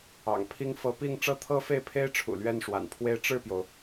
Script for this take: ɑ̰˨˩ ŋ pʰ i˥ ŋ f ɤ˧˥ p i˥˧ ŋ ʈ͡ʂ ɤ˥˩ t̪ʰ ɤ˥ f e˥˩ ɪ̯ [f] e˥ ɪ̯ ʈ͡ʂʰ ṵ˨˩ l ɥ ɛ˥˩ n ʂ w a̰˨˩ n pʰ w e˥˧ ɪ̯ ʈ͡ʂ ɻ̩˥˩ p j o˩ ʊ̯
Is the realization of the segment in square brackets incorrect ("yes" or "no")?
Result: yes